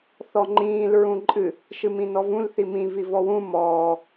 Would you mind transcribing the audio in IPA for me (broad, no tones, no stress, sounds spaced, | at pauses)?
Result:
θ ɔ ŋ͡ǃ ĩː l ɹ ũ ǃʼ ɨ | ʃ ɨ m ĩ n ɔ v ũ l θ i m ĩ v i v ɔ w ũ m ɔː